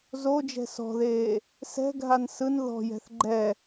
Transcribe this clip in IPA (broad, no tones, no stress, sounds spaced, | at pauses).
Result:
z o d͡ʒ ɛ̤ s ɔ̤ ð eː | s ɛ̤ ɡʱ a n s ɯ n ð ɔ̤ j ɛ̤ θ ɡ͡ǃ ɛ